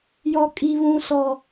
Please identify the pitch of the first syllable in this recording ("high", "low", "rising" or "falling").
high